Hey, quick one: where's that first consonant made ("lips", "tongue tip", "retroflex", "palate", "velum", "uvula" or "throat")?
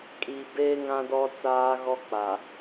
velum